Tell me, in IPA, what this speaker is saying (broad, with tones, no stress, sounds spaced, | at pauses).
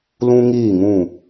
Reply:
l ũ˦ ŋ iː˦˨ ŋ ũ˦˨